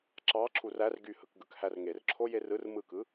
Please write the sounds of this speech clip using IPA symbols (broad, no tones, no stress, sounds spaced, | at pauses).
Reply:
ǁ ɑ ǁʰ u r æ r ɡ y h ɯ k ɡ ɯ k h æ r ŋ e r ǁʰ o j e r ɯ r m ɯ k ɯ